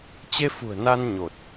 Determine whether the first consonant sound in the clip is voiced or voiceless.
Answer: voiceless